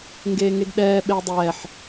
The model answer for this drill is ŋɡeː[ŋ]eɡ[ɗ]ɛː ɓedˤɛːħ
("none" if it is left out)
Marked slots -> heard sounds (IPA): ŋ, ɗ

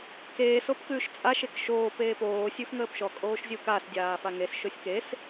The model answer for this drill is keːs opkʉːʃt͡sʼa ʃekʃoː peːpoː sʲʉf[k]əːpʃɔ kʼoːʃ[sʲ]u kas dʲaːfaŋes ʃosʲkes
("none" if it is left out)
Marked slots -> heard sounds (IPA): ŋ, zʲ

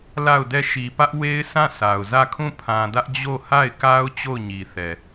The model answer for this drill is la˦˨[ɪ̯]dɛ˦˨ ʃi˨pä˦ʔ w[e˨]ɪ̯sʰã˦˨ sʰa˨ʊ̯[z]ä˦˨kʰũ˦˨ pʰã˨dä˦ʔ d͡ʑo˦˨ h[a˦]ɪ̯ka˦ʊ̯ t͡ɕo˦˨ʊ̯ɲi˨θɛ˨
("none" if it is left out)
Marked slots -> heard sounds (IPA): ʊ̯, e˦, z, a˦˨

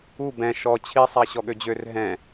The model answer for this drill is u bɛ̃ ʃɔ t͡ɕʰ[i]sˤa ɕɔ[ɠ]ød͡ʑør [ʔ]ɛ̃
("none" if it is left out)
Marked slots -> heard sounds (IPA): i, ɠ, ɦ

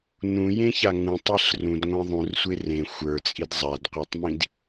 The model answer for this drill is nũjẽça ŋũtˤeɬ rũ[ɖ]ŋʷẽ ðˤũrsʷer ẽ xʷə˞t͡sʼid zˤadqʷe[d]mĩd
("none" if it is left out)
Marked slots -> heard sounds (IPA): d, tˤ

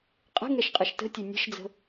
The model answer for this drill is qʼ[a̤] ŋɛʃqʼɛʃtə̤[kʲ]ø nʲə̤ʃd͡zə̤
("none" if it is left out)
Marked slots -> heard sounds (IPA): ə̤, tʲ

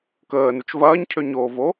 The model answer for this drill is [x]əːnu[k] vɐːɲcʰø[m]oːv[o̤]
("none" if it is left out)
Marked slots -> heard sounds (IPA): k, t͡ʃ, ɲ, o

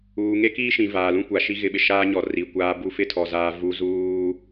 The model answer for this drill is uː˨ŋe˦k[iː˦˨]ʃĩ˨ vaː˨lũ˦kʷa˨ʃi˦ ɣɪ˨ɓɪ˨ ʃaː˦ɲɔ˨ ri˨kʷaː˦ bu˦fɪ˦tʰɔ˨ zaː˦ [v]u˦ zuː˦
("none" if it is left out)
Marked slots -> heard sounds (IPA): iː˦, v

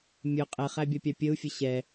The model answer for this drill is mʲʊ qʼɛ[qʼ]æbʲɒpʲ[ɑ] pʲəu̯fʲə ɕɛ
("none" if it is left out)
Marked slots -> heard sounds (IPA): χ, ɑ

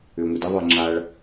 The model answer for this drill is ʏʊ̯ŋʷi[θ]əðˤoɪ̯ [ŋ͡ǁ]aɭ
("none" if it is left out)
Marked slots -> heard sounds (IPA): d, ŋ͡ǁ

